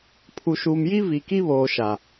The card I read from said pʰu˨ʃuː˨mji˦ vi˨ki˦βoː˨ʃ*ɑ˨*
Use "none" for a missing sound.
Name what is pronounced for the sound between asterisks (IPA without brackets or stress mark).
a˨